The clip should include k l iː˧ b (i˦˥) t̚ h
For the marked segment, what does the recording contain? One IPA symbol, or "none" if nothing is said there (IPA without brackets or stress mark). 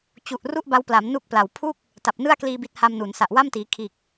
i˦˥